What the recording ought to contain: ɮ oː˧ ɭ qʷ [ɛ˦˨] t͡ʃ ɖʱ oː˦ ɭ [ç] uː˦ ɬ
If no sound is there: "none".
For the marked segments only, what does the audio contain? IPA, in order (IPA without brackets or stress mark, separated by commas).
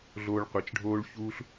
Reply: ɛ˨, ç